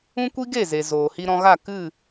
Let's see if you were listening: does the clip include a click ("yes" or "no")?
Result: no